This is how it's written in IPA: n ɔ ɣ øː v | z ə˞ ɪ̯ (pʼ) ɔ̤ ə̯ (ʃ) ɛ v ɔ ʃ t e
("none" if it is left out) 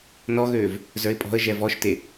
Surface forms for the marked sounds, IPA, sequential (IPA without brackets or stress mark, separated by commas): pʼ, ʒ